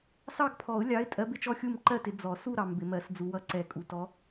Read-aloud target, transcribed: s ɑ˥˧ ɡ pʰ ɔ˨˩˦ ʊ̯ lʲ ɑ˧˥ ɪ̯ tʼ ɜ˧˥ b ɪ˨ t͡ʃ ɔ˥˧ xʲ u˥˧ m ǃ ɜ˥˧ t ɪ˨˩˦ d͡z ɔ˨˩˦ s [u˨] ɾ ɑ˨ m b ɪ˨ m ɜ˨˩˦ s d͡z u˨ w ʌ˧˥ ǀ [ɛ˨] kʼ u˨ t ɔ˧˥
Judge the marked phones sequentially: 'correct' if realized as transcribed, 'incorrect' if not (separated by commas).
incorrect, incorrect